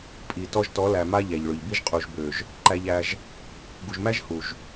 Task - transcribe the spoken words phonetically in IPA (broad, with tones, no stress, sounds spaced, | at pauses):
pʼ i˨ t ɔ˧ ʒ t ɔ˨˦ l æ˨ m a˦ ʎ æ˨ ʎ ɭ ø˨ ʎ b i˦ ʒ qʼ u˨ ʒ b ø˨ ʒ | ǃ æ˧ ʎ æ˧ ʒ | ɡ u˨ ʒ m æ˦ ʒ h u˨ ʒ